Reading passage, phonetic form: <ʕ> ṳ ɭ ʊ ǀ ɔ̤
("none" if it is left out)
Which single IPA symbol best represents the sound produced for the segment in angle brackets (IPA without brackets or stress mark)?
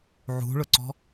ʕ